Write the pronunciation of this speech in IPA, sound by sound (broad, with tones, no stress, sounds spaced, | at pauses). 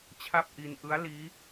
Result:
t͡ɕʰ a˥˩ p̚ ʔ i˧ n ʔ ɯ˦˥ a̯ l iː˦˥